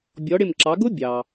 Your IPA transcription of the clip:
bʲ ɔ˩˧ ɽ ɪ˧˩ m ǁ ɑ˩˧ ɡ ʊ˦˥ bʲ ɑ˩

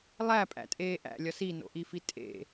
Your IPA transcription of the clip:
lˠ æ pʼ æ̰ tʼ eː ʔ æ̰ lʲ ɒ s i n o̰ ʔ i f i tʼ ḛ

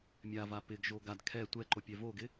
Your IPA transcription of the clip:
mʲ a v a p ɪ ɡ ʒ o ɡ a d kʰ ɛ tʷ ɛ ǃ o pʲ ɛ v o ɡ ɪ

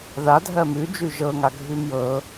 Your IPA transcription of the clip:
ð a dʱ ɜ m ʉ d͡ʒ ʉ ʒ ɤ ŋ a ɡʱ ʉ m j ɤ

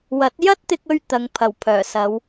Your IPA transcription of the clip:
w ɐ˨˥ t̚ j ɐ˥ t̚ t̪ ɪ˧ k̚ ɵ˧ ɥ t̪ ɐ˨˧ ŋ pʰ ɐ˨˩ w pʰ œː˨˩ s ɐ˨˧ w

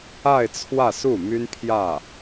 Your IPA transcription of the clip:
a˥˧ ɪ̯ t͡sʰ w ä˥˧ s u˥˩ m y˥ n pʰ j ä˥˩

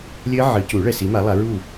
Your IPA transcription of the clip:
lʲ ɘ˦˥ ʕ ɨ˨˦ c u˨˩˦ ɭ ɛ˨ s i˨˦ m a˨˦ lˠ a˨˦ ɹ u˦˨

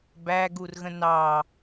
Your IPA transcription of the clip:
b æ ɡ u r ɣ ə̃ n ɑ

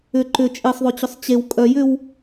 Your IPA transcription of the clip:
ʏ ǃ ʏ t͡ʃʼ e sˤ ðˤ ø t͡ɕ ʏ sˤ t͡ɕ e w kʼ œ j ʏ w

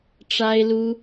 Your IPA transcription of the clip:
ʈ͡ʂ a˥ ɪ̯ l u˥

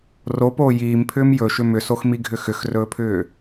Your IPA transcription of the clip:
r o p oː j iː m pʰ ʏː m j ɵ ʃ ʏ m ʏ s o x m i ɡʱ ʏ x ʏ x r ɵː pʰ ʏː

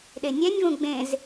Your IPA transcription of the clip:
ɗ e nʲ ɛ nʲ v ũ ɡ͡b ẽ z

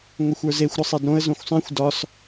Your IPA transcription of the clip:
ŋʷ ɘ xʷ ə˞ z e xʷ ɾ ə sˤ e d ɾ õ ə̯ z õ xʷ sˤ ɛ̃ xʷ d ɒ s

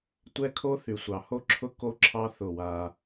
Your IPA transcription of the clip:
tʷ ɛ˦ kʰ o˦ θ y˨ sʷ ɑ˨ h o˦ ǁʰ ʊ˦ k o˦ ǁʰ ɑ˦ θ ʊ˦˨ w a˦

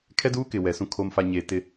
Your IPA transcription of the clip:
kʰ ɛ˦ d uː˦ k ɪ˨ w ɛ˨ s ũ˨ kʰ o˨ m f a˨ ɲ eː˨ t ɪ˦

